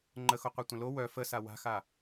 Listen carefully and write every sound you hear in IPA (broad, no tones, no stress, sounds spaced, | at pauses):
ŋ͡ǃ ə x o qʷ a tʷ ə̃ l o w œ f ə s a w a̤ x a